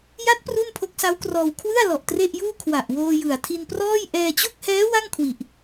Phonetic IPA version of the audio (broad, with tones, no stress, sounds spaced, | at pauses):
j a˦˥ t̚ p r u˥˩ n pʰ o˦˥ k̚ s a˦˥ w k r ɔː˧ w kʰ w ɯ˥˩ a̯ l ɔ˨˩ ʔ t r e˥˩ ʔ j uː˥˩ kʰ w a˨˩ ʔ w oː˧ j ɯ˨˩ a̯ tʰ i˧ n p r ɔː˥˩ j ʔ ɛː˧ t͡ɕ o˥˩ k̚ h ɛː˦˥ w a˥˩ ŋ kʰ w i˨˩ ʔ